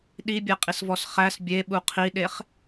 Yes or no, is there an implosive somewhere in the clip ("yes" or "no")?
yes